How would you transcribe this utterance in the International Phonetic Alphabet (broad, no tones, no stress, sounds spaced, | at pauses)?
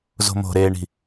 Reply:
z o̤ m o̤ ɾ eː ɳ i̤